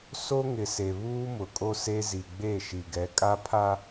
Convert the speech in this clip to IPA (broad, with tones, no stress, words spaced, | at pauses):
so˦ŋɪ˨ se˨βuː˦mʊ˨kʼo˦ se˦zi˨ ɡ͡be˦˨ʃi˨ɡɛ˨˦ kʼa˦pʰa˦